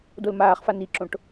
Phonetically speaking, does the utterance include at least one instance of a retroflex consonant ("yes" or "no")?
yes